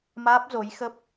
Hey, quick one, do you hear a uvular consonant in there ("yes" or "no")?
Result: no